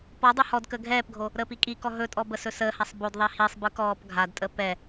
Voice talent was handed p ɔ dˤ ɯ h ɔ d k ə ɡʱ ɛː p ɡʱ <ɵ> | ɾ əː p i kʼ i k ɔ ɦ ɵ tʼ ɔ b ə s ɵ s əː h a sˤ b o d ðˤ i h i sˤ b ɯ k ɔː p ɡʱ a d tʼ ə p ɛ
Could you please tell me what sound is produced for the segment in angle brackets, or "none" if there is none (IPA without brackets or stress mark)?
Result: o